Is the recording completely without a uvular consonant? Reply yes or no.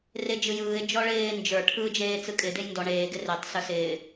yes